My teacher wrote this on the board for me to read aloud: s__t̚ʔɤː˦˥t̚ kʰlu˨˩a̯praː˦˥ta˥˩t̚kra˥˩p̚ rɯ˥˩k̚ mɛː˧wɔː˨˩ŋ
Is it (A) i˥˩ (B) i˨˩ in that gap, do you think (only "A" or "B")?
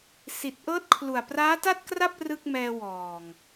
B